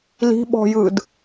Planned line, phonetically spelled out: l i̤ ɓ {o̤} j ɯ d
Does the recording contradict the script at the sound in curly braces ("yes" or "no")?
yes